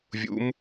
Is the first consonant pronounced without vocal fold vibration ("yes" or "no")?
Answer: no